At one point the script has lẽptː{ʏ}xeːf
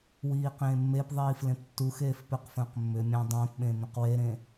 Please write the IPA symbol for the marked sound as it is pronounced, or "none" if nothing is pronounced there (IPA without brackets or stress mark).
u